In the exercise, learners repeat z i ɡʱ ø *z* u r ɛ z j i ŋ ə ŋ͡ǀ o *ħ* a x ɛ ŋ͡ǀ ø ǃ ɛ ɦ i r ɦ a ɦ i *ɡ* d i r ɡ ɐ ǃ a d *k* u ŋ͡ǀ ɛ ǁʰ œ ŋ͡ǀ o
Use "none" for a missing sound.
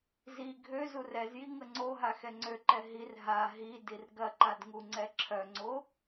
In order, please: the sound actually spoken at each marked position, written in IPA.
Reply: z, ɦ, none, ŋ

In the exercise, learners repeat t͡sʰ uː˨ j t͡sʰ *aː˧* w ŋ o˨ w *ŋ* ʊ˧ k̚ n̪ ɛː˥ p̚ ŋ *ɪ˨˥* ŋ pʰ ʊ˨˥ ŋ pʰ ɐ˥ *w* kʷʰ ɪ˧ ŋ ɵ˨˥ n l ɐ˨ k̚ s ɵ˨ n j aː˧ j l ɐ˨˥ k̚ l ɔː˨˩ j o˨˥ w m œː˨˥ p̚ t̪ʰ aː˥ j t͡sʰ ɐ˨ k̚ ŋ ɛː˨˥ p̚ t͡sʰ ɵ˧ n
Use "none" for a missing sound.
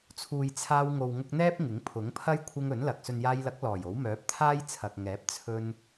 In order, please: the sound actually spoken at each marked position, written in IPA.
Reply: aː˧, ŋ, ɪ˨˥, j

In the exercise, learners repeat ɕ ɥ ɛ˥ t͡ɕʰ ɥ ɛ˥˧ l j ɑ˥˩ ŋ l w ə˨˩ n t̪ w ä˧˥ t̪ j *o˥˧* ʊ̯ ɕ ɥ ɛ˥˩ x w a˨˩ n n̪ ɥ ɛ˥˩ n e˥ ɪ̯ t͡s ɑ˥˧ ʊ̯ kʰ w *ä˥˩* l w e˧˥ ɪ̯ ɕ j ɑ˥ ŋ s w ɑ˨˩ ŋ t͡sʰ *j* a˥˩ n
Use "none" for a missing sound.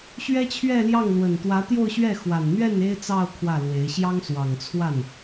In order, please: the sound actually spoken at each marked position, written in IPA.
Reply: o˥˧, ä˥˩, w

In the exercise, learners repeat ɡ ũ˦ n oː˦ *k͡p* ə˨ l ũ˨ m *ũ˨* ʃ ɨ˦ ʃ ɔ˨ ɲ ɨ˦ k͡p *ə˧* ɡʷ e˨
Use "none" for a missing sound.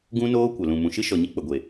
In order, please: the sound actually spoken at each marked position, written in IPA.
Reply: kʷ, ũ˨, ə˨

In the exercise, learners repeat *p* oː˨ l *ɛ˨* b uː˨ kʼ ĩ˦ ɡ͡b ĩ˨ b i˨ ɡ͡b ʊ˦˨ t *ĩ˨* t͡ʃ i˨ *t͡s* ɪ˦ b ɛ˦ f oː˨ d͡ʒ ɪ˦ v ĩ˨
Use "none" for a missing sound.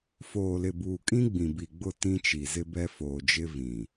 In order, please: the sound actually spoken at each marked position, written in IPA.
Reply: f, ɪ˨, ĩ˦, z

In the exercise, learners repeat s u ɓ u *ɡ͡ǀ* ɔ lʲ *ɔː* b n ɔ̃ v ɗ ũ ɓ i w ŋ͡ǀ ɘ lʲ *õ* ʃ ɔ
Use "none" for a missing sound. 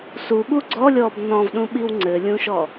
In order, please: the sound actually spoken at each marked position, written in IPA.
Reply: ɡ͡ǀ, ɔː, ũ

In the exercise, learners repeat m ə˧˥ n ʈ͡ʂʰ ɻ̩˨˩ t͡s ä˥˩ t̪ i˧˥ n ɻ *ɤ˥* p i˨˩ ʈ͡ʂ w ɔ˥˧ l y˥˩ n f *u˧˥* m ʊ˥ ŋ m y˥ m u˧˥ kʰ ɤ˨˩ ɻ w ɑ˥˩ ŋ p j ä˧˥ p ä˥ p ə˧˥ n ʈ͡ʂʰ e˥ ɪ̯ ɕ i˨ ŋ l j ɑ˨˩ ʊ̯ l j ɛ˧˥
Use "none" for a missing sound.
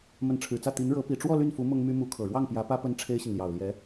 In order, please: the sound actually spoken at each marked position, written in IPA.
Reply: ɤ˧˥, u˧˥

